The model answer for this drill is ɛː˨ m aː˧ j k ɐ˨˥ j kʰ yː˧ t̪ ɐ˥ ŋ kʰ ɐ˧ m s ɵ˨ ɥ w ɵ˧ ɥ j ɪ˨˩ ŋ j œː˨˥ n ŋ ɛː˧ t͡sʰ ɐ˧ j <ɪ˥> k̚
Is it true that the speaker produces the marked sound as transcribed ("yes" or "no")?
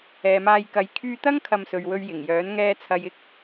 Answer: yes